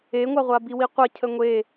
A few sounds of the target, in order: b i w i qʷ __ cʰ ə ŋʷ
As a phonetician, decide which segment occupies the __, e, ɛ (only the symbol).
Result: ɛ